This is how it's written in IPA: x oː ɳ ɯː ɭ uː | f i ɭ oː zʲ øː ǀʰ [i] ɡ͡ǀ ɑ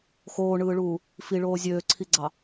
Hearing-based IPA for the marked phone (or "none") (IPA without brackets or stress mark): i